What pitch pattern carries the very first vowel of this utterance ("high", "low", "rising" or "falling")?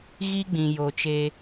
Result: high